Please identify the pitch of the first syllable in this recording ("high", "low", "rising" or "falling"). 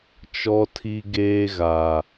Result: high